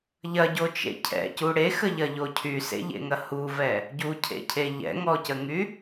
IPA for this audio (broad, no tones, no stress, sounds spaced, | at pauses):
ʎ ɐ ɟ o t͡ʃ ḛ cʰ ɛ̰ c u ɽ e x ə ʎ ɐ ʎ o cʰ y s ḛ ʎ ḛ ŋ ɐ h u v ɛ | ɟ u cʰ ḛ cʰ e ʎ ɛ̰ ŋ ɔ c ə ŋ y